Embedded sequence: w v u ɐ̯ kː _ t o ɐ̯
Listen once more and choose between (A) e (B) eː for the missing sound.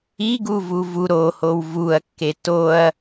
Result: A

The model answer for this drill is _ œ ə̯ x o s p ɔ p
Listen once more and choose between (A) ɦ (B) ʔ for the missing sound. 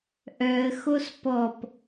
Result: B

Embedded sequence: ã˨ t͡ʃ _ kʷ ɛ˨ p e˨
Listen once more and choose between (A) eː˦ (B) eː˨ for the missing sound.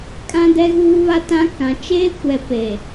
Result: A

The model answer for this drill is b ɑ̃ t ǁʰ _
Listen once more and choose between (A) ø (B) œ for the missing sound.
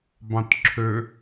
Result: A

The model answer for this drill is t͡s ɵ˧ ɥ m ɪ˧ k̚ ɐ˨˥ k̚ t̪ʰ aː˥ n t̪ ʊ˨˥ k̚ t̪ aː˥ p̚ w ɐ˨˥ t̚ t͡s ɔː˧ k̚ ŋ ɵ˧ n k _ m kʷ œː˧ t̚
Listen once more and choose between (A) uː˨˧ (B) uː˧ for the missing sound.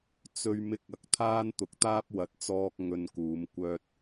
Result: A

